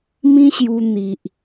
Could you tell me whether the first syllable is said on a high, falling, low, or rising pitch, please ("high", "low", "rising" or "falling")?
high